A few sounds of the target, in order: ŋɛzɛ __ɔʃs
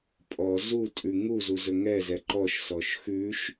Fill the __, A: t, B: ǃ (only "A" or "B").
B